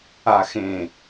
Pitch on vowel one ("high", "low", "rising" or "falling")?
low